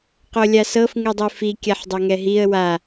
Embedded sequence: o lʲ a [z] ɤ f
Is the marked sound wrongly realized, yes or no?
yes